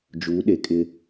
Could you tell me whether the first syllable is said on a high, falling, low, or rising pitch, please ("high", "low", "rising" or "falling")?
rising